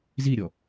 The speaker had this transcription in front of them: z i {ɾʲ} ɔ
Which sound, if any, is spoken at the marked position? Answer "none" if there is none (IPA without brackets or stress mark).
ɾʲ